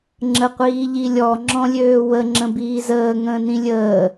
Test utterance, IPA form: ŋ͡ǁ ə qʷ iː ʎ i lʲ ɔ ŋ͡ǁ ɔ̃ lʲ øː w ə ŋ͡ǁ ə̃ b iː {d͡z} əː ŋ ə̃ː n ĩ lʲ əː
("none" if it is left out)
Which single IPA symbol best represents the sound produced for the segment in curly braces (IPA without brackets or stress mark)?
z